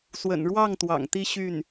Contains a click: no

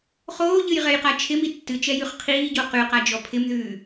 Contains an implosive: no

